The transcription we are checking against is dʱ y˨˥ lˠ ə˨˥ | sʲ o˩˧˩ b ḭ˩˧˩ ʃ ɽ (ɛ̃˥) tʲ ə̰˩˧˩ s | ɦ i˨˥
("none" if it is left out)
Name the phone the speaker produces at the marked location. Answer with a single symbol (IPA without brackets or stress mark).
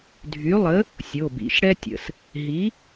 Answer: ɛ˥